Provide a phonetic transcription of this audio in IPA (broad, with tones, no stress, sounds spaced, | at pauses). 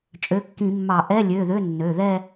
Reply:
t͡ʃʼ ø˩˧˩ kː ĩ˧˩˧ mː ɑ˧˩˧ ʔ ɛ˧˥˧ lʲ ø˩˧˩ ð ø˧˥˧ nː ø˩˧˩ ð ɛ˥˧